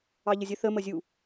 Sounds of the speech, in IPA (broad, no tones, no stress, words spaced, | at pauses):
ɑʎəzʲə θə məzʲu